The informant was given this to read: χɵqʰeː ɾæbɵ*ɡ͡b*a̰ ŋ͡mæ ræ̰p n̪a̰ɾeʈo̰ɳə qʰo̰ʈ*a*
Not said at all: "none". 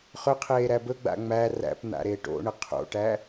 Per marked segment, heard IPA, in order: ɡ͡b, æ

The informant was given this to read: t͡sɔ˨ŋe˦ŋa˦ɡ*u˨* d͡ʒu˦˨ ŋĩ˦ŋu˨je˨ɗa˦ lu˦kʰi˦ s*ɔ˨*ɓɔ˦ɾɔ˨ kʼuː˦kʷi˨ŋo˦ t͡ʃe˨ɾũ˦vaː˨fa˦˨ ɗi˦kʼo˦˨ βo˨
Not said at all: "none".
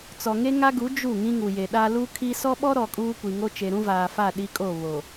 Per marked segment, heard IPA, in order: u˨˦, ɔ˦

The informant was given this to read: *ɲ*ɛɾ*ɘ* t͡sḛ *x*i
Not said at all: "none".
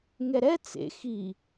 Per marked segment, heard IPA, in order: ŋ, ɛ, x

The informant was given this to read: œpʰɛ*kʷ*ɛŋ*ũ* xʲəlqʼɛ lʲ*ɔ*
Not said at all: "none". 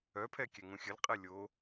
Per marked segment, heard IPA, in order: kʲ, ũ, o

